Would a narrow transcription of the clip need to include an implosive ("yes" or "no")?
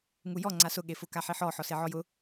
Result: yes